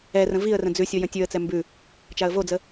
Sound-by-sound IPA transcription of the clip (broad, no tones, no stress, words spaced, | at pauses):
ɛrə̃ viə̯rə̃ d͡zʉsʲo jə̃tʲʉə̯t͡sɛ mbʉ | t͡ʃaə̯vod͡zə